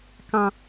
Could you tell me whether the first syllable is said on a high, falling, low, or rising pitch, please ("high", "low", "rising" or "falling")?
low